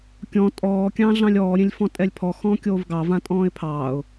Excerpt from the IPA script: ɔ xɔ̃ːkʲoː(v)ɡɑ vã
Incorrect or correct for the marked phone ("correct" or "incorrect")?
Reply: correct